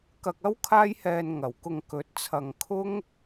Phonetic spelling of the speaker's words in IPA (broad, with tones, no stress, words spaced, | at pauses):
kɐ˧k̚ɐ˥w kʰaː˥jhɛː˧n ŋɐ˨˩wkʊ˨ŋ kɵ˨˥t̚t͡sʰɐ˨ŋ kʰʊ˥ŋ